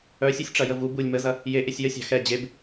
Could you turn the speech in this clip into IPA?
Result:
œ sʲ u sʲ ʈ͡ʂ ɐ j ə v u b u lʲ m ə z ɐ | j e ʔ e sʲ j ə sʲ ɑ̤ x ɛ d͡ʑ e b

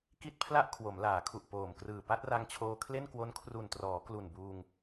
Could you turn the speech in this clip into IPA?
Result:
k i˥˩ t̚ pʰ l a˥˩ ʔ kʰ w o˩˦ m l aː˩˦ kʰ u˨˩ ʔ p oː˨˩ m k r ɯː˨˩ p a˥˩ t̚ r a˧ ŋ t͡ɕʰ oː˧ kʰ l e˥˩ n k w o˦˥ n kʰ r u˨˩ n t r ɔː˩˦ k l u˨˩ n b uː˧ ŋ

